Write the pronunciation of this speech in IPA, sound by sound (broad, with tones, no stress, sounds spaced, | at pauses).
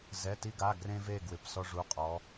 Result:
z ɛ˩˧˩ t i˧ ɡ a˩˧˩ ɡ r ẽ˧ v e˩˧˩ ɡ w ɪ˩˧˩ p s ɔ˧ ʐ u˩˧˩ qʼ ɔ˩˧